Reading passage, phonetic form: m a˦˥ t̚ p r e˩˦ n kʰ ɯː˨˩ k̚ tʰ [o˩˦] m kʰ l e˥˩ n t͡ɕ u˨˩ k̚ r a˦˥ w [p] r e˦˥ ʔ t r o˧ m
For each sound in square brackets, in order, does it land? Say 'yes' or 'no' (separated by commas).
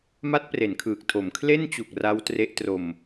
yes, no